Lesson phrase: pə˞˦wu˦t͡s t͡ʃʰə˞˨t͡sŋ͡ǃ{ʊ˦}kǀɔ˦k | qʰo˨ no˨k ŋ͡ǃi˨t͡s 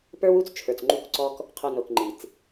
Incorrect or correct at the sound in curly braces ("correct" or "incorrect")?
incorrect